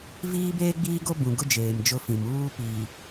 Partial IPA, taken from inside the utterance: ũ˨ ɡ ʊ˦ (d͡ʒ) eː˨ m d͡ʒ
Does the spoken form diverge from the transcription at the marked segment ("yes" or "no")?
no